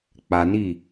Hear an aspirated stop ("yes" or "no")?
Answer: no